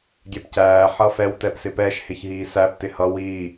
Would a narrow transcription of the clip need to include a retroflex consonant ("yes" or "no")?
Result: no